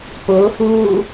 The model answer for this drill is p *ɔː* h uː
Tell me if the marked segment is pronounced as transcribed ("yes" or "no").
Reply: no